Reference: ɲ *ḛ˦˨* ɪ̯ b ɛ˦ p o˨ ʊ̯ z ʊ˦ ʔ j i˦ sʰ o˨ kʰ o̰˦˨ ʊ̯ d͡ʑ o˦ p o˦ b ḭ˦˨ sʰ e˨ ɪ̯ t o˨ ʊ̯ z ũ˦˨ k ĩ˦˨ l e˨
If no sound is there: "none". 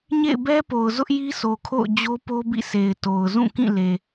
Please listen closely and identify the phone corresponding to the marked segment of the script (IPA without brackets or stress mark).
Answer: ḛ˦˨